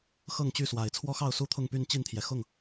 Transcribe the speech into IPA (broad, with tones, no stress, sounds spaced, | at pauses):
x ɤ˥˨ ŋ t͡ɕ y˥˨ s w a˨˩ ɪ̯ t͡sʰ w ɔ˦ x ɑ˥˨ ʊ̯ s u˥˨ t̪ʰ ʊ˥˨ ŋ p y˥˨ n t͡ɕ i˥˨ n t̪ʰ j ɛ˩ x ʊ˥˨ ŋ